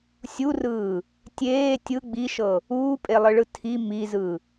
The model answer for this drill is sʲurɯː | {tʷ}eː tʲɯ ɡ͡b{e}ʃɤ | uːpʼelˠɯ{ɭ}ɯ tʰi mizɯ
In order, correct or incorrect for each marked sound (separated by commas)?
incorrect, incorrect, correct